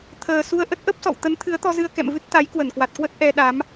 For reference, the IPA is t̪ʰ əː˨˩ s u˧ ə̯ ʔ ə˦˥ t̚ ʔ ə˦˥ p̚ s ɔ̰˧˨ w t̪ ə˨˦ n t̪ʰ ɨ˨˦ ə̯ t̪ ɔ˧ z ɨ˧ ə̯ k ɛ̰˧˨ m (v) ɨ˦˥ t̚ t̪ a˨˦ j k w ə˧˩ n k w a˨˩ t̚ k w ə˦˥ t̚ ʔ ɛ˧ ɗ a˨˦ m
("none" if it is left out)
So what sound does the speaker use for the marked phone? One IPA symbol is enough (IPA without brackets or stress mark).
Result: v